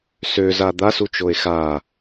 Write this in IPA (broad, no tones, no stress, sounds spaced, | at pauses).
s ø z a d̪ a s u t͡ʃ o e̯ x a